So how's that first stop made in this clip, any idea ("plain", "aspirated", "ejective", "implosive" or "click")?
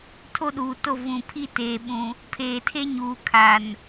aspirated